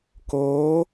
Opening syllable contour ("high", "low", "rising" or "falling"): rising